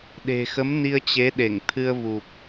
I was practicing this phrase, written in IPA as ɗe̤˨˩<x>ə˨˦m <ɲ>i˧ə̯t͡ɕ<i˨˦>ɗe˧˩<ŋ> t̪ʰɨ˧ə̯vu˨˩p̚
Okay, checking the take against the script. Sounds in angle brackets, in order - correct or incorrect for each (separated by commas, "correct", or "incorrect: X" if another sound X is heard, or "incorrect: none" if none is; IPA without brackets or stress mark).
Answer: correct, incorrect: n, incorrect: e˨˦, correct